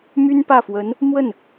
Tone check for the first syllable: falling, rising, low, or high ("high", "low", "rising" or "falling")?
high